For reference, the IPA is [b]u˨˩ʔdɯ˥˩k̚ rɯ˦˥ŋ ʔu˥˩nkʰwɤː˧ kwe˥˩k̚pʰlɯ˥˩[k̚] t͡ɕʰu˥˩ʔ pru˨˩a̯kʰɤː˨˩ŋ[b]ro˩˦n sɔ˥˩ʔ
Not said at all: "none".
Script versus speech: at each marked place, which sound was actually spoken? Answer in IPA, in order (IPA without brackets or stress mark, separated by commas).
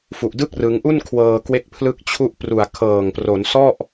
f, k̚, p